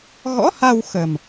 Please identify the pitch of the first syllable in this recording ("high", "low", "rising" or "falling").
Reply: rising